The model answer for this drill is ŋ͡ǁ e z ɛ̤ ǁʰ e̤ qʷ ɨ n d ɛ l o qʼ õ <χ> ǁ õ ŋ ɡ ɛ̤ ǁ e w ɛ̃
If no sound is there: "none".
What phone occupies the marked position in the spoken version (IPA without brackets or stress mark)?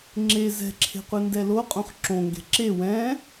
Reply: χ